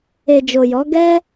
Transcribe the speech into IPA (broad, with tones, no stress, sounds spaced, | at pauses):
e˨ d͡ʒ o˨ j ɔ˨˦ ɡ ɛ˦